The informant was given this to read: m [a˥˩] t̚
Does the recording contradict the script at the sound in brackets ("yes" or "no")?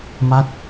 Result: no